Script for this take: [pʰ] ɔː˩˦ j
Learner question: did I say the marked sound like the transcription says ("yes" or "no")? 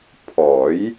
yes